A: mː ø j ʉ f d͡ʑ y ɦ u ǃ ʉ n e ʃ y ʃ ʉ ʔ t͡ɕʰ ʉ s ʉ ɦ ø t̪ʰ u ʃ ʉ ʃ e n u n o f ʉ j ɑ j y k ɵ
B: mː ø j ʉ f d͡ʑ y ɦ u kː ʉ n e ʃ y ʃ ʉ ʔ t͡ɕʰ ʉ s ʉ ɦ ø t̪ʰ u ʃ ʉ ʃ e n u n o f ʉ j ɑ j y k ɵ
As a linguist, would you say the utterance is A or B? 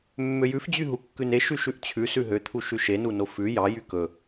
B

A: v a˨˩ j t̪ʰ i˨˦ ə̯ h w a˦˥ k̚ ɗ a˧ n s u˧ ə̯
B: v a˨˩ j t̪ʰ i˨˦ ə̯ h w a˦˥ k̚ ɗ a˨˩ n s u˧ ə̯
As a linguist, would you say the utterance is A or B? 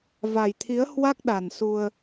B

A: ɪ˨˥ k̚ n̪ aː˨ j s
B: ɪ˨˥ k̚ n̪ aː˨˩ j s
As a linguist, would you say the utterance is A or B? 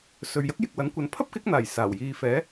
B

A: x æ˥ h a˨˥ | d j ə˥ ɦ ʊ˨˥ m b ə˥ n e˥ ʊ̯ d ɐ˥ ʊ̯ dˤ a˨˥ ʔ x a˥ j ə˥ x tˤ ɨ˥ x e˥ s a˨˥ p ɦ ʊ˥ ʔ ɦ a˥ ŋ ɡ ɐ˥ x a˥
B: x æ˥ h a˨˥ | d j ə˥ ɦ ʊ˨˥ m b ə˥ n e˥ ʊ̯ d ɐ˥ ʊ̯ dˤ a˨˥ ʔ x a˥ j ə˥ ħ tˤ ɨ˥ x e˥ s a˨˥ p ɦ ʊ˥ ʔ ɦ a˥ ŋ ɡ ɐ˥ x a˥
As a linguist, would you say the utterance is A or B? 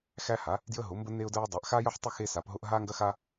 B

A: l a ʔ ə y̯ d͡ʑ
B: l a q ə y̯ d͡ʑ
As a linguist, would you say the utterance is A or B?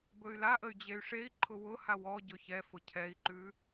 A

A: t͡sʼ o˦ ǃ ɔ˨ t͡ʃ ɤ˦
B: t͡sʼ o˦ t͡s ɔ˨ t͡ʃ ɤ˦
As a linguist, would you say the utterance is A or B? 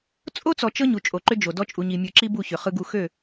B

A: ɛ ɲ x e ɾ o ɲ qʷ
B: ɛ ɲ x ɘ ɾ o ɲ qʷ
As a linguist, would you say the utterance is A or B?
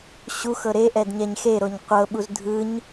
A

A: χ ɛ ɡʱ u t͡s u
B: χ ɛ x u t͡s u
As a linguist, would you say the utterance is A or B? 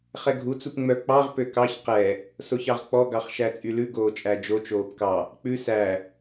A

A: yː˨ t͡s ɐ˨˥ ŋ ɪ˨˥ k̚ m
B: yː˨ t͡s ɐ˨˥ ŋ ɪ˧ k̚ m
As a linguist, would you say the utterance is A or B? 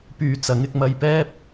B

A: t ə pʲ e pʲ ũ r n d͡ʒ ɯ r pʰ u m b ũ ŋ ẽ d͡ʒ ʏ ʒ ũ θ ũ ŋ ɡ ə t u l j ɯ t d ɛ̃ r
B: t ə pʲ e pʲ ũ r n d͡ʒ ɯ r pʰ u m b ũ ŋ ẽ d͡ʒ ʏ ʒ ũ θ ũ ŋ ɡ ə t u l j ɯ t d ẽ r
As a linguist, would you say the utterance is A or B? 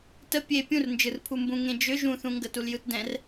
A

